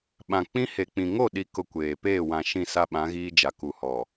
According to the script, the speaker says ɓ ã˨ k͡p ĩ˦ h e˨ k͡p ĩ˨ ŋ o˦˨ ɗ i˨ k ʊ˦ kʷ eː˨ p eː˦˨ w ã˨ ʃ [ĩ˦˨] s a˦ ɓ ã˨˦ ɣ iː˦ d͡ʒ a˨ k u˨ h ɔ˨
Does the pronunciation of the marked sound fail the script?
no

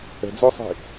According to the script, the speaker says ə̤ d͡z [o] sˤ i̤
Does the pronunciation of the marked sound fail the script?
no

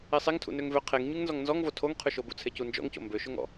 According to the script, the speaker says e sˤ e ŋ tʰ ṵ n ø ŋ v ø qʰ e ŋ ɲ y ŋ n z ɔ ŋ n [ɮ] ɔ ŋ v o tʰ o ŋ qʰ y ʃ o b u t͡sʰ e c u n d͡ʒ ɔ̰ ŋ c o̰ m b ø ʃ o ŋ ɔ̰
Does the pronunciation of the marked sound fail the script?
yes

